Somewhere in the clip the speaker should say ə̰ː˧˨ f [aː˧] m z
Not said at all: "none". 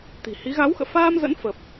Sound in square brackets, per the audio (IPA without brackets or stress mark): aː˧